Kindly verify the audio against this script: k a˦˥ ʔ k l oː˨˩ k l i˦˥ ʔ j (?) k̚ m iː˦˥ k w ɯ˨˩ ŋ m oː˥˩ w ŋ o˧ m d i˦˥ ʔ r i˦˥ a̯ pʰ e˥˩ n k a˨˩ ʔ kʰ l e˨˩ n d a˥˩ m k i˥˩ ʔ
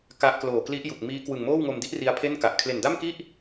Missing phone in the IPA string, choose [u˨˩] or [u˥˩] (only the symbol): u˨˩